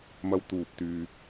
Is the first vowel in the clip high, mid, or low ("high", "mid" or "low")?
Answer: low